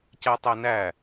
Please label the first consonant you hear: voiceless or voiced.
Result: voiceless